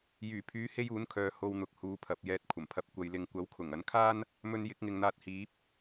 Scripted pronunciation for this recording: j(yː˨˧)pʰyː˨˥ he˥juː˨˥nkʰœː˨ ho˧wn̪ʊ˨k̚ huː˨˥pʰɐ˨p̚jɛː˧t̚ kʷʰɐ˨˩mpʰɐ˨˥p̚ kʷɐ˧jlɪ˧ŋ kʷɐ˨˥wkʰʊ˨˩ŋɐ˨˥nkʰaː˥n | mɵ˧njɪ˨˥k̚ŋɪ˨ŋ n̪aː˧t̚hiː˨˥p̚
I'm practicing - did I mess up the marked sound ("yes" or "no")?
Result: yes